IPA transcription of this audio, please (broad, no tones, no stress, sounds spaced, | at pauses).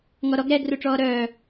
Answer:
ŋ ɔ ɾ ɔ ɡ ɾ ɛ ɡ r u ʈ͡ʂ ɔː ɾ œː